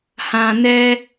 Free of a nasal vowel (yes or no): no